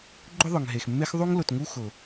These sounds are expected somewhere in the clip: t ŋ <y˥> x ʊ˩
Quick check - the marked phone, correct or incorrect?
incorrect